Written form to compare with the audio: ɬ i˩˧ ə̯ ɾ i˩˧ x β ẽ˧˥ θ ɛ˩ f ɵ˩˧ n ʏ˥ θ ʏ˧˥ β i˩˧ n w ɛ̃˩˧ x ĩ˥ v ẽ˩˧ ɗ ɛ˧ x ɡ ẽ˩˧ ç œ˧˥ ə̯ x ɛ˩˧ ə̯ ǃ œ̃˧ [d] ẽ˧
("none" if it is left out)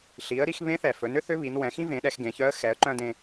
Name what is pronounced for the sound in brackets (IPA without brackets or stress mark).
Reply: d